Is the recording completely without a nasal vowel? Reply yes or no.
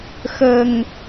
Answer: yes